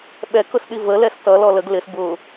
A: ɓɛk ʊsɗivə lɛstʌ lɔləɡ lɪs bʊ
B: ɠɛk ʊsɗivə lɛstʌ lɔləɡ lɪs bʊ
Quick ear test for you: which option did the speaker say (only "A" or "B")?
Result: A